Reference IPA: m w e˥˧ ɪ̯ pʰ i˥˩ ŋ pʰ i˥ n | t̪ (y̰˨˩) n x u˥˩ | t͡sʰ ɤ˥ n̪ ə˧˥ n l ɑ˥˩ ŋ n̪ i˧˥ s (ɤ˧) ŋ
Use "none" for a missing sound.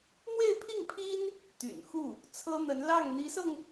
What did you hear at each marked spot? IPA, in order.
y̰˨˩, ɤ˧

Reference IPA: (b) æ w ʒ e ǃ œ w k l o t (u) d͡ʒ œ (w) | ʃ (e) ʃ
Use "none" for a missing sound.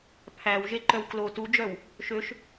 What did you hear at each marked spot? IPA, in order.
pʰ, u, w, ø

